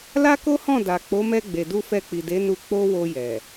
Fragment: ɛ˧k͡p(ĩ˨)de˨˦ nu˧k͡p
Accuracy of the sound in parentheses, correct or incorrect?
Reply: incorrect